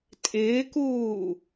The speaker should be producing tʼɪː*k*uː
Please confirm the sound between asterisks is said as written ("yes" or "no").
yes